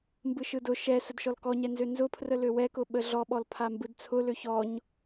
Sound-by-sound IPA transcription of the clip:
mbɯʃɯdʊ ʃɛsəd ʃɔlkɔɲɛnzø nzʊpʰrə løwɛkʊ ɓəɮɔɓɔl pʰambɯdt͡sʰʊlø çɔɲ

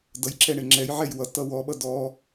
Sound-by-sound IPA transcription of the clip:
dʌjǁɛ ɳeŋ͡ǁɛjʕɛj wʌ tʌwɔɓʌ dɔ

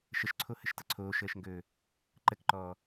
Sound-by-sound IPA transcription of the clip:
ʃəʃǀʰohəʃtʌ ǀʰoːʃəːʃŋɡɵː | ǃəkǃɔː

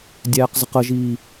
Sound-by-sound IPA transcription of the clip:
dʲæːqzəqəʒiː

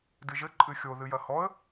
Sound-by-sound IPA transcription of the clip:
dɨʒɘ ǃʼɨxʲo ðɨjɐhɔə̯

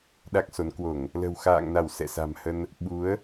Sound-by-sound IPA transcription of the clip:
ɗa˦˥k̚so˨˦n kwo˧˩˨ŋ | lə̤˨˩wxa̰ː˧˨ŋna˧˩w sɛ̰˧˨sa̤˨˩mhə˧n | ɓu˨˦ə̯

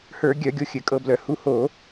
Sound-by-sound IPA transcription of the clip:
hə˞˧˩˧ɡʲœ˧˩˧ɡʲo˧ xʲɘ˧˩˧kʼɤ˧blœ˧˩˧ hu˧ho˧˩˧

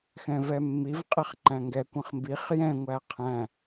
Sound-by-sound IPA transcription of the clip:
xɛ̃vɛmːiv qʼɛχǃæ̃ŋɡɛ kʷə̃χmbiχ jɛ̃ ŋʷæqʰæ̃

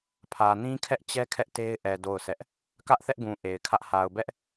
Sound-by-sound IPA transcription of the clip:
pʰä˨ nĩ˦kʰɛ˦ʔt͡ɕɛ˦ kʰɛ˦ʔte˦ɪ̯ ʔɛ˨ do˦˨ʊ̯sɛ˦ʔ | kä˦ʔθɛ˦ʔɡũ˨ ʔe˨ɪ̯kʰä˦ʔ ha˨ʊ̯bɛ˦ʔ

